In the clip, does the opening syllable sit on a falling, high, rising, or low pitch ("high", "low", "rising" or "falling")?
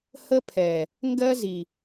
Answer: high